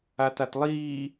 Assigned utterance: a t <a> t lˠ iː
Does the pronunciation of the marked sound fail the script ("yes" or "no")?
no